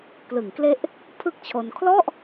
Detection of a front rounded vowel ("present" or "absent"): absent